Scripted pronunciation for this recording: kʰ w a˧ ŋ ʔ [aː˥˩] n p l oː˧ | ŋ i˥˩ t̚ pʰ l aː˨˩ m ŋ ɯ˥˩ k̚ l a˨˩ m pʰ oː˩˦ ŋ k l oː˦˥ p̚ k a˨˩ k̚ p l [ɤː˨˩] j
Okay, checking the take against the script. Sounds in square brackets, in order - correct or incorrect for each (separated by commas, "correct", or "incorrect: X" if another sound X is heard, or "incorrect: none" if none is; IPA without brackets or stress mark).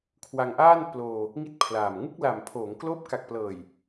correct, correct